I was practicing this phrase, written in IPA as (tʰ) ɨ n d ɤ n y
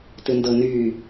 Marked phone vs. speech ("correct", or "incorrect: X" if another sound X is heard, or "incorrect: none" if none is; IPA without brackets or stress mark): incorrect: t